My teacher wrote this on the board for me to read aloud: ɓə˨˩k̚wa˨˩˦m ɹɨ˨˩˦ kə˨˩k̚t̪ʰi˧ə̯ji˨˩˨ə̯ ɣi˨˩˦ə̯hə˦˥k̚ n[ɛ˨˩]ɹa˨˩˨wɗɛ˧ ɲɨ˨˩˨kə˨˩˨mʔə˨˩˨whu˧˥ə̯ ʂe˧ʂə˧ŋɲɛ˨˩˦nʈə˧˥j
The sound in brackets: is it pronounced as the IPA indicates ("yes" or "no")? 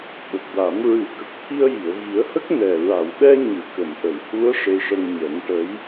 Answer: yes